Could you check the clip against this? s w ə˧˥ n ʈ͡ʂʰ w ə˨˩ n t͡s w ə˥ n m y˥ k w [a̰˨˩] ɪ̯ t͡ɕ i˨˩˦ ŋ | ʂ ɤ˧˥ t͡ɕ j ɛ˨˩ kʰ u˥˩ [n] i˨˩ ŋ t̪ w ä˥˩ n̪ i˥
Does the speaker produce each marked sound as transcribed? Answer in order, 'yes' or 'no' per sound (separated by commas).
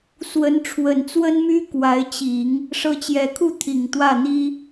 no, no